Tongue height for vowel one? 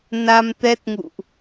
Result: low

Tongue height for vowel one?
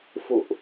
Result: high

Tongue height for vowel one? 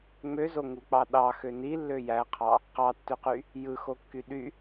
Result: mid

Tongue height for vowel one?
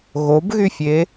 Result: mid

